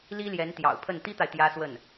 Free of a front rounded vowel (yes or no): yes